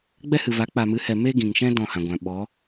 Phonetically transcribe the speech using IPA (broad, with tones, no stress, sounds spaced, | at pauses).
ɡ͡b ɛ˦ h ɨ˨ v a˨˦ k͡p a˨ m ɨ˨˦ h ɛ˨ m e˦ ɡ ĩ˨ ŋ ʃ ɛ̃˦ d ɔ̃˦˨ h ã˨ ɡʷ ã˨ ɓ ɔ˨˦